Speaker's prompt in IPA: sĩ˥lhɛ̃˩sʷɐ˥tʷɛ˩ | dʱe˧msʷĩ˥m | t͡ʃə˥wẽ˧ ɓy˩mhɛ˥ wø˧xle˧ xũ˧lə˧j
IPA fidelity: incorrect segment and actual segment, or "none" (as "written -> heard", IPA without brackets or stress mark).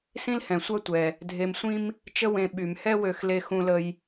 none